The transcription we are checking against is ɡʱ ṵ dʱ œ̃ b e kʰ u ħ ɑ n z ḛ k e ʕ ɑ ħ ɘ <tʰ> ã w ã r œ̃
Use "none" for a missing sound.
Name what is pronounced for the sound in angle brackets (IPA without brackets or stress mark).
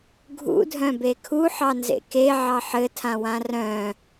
tʰ